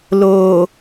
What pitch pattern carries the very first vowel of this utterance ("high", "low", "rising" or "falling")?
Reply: low